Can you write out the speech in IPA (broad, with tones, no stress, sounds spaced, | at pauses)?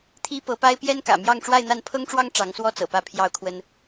t̪ʰ i˥ p ɤ˧˥ p a˥ ɪ̯ p j ɛ˥ n k ä̰˨˩ m j ɑ˥˧ ŋ ʈ͡ʂ w a˥˧ ɪ̯ n̪ a˥˩ n pʰ ɤ˥ ŋ ʈ͡ʂ w ɑ˥ ŋ ʈ͡ʂ ɑ˧˥ ŋ s w ɔ˥ t͡s ɤ̰˨˩ p ä˥˩ pʰ j ɑ˥ ʊ̯ kʰ w ə˥ n